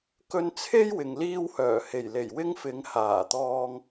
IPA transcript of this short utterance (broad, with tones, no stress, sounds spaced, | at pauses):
k ɵ˧ n t͡sʰ e˥ j w ɪ˨ ŋ l iː˥ w h œː˨˩ h e˨˩ j l e˨˩ j w ɪ˥ ŋ f ɪ˨˧ ŋ h aː˨˩ t̪ ɔː˧ ŋ